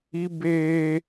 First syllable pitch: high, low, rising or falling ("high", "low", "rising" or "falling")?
high